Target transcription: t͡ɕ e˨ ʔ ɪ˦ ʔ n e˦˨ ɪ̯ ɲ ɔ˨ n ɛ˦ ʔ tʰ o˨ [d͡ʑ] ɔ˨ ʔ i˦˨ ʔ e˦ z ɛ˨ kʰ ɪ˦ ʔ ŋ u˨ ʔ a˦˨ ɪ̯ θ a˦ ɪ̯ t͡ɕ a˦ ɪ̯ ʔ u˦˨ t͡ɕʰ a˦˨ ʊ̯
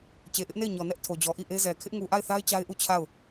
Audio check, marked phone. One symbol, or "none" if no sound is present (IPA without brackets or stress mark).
d͡ʑ